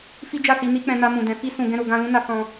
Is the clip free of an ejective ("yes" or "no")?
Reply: yes